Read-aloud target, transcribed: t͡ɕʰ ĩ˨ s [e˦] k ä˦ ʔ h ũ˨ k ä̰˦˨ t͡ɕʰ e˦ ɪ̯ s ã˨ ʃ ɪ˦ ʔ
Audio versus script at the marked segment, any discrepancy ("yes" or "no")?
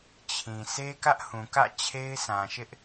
no